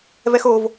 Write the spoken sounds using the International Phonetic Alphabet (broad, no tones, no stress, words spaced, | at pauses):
vɛxov